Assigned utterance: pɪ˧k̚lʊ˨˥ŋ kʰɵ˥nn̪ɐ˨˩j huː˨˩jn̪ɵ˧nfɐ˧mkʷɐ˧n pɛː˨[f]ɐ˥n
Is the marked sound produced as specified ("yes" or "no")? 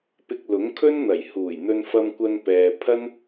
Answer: no